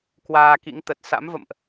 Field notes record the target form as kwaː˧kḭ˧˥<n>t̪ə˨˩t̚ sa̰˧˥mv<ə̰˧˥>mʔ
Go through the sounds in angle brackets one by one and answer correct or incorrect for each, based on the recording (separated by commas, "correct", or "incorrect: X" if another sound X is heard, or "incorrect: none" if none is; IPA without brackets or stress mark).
incorrect: ŋ, incorrect: ə̰˧˨